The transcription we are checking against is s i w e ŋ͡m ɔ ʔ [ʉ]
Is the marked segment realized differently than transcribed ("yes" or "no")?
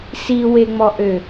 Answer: yes